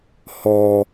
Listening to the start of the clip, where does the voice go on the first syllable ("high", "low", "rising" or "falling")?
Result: low